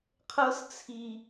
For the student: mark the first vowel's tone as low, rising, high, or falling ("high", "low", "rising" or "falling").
high